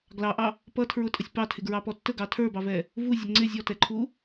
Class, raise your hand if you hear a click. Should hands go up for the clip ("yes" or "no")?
yes